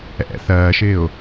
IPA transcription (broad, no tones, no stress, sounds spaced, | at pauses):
ɛ̰ θ ɜː ʃ ɪː ʊ̯